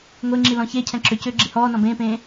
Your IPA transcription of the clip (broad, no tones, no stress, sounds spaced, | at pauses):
ŋʷ e ŋ͡ǁ i l ɔ̃ ç e cʰ ɛ̃ ǁ ʏ c ʏː ɡ͡ǁ i h ɔː n ɔ̃ b ẽː p ẽː